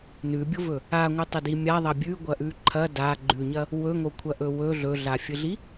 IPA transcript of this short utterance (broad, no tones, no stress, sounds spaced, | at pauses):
n ʉ bʲ o v ɵ | a ŋʷ ɨ tˤ ɵ d i mʲ a ðˤ ɐ bʲ ʉ ɡʷ ɐ ʔ ʉ ǃʰ ɐ d a ɡ͡ǃ ʉ ɲ ɐ | w ɵ ŋ o kʷʰ ɐ ʔ ɵ w ɵ ɮ ɵ ɮ a fʲ ɨ ɮ i